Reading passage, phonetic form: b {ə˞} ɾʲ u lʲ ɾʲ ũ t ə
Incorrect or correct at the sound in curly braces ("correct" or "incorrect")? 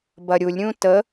incorrect